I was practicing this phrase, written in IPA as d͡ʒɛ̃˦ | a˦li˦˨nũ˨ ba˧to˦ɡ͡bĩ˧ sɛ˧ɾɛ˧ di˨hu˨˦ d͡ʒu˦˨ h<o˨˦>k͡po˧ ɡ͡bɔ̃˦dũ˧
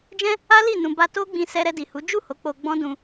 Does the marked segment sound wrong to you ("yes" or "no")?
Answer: no